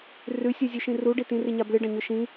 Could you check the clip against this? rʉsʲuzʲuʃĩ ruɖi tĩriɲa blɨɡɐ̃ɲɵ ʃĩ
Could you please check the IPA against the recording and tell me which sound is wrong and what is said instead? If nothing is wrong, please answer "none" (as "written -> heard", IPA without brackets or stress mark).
ɡ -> ɖ